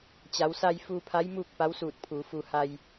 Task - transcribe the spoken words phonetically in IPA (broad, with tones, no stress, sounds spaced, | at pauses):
t͡ɕ a˩˧ w s a˧ j f uː˧ pʰ a˧˥ j m uː˥˨ k̚ p a˧˥ w s uː˧˩ t̚ pʰ uː˩˧ f u˧ h a˧ j